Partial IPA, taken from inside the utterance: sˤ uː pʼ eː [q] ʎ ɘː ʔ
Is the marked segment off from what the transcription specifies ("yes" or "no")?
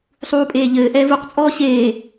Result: yes